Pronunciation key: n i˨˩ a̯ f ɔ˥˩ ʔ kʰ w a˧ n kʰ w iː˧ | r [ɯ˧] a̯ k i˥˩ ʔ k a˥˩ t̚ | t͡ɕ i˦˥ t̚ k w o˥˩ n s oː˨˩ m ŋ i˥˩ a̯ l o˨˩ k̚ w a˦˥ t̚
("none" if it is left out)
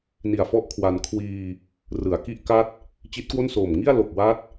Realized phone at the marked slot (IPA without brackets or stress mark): ɯ˩˦